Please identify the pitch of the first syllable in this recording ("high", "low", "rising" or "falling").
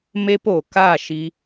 high